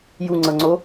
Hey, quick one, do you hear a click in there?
yes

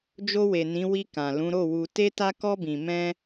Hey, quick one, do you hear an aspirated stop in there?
no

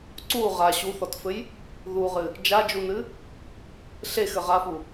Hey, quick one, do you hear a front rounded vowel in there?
no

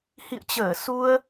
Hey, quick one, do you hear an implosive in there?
no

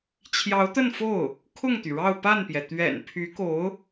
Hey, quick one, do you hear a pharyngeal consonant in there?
no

